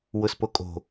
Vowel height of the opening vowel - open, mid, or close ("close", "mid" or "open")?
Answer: close